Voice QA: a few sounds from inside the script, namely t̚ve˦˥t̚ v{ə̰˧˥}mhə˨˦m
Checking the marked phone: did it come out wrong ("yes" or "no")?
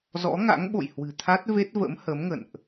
no